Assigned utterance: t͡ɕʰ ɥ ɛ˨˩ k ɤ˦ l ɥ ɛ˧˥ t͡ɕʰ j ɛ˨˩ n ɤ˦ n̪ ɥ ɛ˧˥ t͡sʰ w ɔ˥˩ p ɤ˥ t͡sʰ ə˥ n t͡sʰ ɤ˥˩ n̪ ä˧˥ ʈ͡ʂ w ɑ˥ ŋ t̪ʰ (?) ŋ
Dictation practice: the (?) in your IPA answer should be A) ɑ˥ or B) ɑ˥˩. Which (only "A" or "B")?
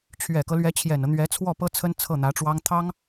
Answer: A